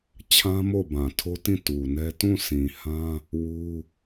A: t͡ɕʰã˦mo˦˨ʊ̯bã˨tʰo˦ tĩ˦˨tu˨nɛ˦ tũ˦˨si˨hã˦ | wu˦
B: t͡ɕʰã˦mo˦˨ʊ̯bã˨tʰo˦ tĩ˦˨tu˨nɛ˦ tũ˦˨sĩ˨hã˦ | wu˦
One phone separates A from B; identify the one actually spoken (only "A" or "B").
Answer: B